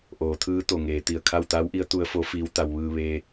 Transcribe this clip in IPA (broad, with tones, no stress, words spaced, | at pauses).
ʔoː˩˧t̪ʰɯː˧˥ t̪o˧˩ŋeː˩˧ t̪i˧˩ə̯kʰa˥˨w t̪aː˧˥wʔi˧˥ə̯ t̪u˧˥ə̯fo˧˥ fiː˧˥wt̪a˧w ʋɯː˧ ʋeː˧